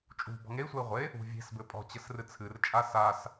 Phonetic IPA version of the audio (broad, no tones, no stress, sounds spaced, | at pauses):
t͡ʃʼ ṳ b ɔ̤ ŋ e i̯ sʷ ɛ i̯ ʁʷ e | ṳ vʲ e̤ s b ɘ pʼ ɔ̤ t͡ɕ ɘ s r ɨ t͡sʰ ɨ r t͡ʃʼ a s a s